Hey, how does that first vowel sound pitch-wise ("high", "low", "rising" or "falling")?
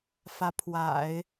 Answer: rising